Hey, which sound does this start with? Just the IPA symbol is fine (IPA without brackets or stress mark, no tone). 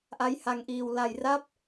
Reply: ʔ